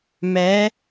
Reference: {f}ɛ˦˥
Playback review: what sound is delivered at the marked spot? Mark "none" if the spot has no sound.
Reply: m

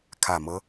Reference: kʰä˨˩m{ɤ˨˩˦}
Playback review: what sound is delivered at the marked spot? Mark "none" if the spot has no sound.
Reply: ɤ˦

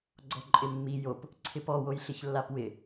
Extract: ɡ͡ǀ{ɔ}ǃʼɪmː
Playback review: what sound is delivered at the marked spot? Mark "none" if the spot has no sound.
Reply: ɔ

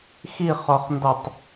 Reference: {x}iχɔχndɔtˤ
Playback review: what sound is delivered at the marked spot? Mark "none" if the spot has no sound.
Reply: x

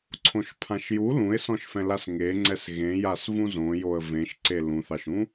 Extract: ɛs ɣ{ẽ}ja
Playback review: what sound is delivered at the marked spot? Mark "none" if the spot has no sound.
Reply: ẽ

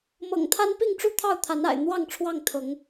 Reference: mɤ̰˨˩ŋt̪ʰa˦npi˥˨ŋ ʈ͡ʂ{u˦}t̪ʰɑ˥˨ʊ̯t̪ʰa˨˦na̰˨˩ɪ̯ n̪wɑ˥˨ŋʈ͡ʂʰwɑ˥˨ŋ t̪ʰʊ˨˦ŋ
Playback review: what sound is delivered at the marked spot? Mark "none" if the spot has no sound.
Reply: u˥˨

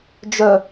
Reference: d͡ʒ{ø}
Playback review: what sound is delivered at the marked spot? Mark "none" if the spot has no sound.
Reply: œ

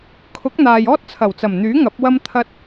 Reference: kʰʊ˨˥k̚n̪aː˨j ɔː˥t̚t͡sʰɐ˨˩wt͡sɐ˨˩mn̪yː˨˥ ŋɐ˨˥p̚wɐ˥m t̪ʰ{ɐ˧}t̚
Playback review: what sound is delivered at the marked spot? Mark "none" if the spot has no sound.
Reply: ɐ˧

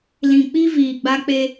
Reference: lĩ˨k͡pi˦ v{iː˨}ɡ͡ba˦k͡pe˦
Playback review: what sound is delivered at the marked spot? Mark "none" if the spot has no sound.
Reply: iː˨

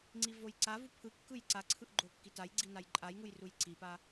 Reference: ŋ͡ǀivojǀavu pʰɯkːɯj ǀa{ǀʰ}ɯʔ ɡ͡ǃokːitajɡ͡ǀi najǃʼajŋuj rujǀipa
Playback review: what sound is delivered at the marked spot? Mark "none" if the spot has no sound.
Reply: ǀʰ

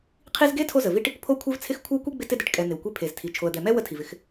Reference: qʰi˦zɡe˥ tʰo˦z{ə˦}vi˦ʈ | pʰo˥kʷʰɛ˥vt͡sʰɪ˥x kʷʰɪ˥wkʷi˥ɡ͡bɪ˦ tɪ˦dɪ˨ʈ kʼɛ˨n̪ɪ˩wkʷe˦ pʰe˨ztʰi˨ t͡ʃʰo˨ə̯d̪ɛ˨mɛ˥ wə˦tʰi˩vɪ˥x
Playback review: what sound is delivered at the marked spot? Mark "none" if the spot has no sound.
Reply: ə˩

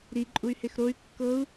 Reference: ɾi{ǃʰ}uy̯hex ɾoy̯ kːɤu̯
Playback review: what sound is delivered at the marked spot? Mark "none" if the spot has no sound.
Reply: ǃʼ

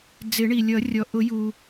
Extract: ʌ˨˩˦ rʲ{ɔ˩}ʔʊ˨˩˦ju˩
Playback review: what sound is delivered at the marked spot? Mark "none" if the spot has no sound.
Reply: ɔ˩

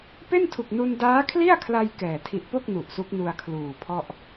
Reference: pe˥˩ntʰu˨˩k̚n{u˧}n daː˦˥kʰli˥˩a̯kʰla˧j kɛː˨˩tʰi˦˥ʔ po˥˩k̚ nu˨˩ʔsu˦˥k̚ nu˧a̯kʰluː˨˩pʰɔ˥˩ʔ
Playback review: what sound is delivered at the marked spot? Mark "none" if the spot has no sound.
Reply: u˧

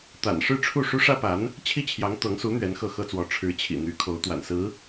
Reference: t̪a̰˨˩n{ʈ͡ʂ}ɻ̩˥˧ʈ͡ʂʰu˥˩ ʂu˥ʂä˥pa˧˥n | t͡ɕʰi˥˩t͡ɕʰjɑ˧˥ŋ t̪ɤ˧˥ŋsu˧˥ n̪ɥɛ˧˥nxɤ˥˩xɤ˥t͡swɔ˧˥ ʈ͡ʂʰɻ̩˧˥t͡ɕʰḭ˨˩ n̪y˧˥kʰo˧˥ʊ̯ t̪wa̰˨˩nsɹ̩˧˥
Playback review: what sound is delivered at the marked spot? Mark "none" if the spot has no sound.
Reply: ʂ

